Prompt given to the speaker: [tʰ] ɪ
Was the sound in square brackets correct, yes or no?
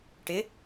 no